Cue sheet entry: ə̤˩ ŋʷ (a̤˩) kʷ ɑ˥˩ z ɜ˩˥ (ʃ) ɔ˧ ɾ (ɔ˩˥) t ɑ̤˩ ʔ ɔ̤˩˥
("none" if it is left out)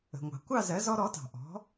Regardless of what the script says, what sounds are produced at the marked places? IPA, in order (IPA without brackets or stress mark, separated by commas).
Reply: ɑ̤˩, z, ɔ˩˥